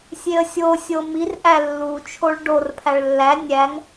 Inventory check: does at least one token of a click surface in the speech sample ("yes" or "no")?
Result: no